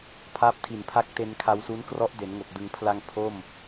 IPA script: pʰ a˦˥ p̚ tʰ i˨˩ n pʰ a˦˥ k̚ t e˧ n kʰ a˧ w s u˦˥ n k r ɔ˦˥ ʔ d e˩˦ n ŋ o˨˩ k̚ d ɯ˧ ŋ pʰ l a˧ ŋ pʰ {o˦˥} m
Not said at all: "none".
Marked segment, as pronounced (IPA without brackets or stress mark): o˥˩